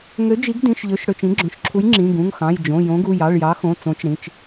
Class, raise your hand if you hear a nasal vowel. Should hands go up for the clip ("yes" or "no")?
yes